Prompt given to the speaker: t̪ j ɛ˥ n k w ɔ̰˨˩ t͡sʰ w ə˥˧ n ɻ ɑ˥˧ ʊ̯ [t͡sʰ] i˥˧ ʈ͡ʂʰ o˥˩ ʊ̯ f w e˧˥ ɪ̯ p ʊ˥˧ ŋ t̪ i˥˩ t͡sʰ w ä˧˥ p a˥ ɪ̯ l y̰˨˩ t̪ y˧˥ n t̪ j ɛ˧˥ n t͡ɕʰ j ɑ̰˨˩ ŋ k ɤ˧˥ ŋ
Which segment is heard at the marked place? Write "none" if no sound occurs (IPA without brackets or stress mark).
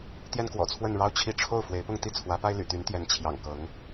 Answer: t͡ɕʰ